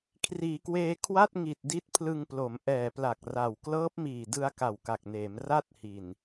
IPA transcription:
kʰriː˩˦kweː˧ kʰwa˥˩t̚ŋi˨˩t̚ di˦˥t̚pʰlɯ˧ŋplo˩˦m ʔɛː˨˩pla˨˩k̚ra˨˩w klɤː˦˥p̚miː˨˩dɯ˧a̯ ka˨˩wka˨˩k̚neː˩˦m ra˦˥t̚ hi˨˩n

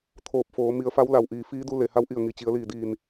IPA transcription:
t̪ʰoː˧˩p̚foː˩˧ mi˩˧ə̯fa˧˥wla˩wʔiː˩ fiː˧˥du˧ le˩ha˧˥wʔi˧˩ə̯ ŋi˩t͡ɕi˩˧ə̯liː˧˩diː˧˩n

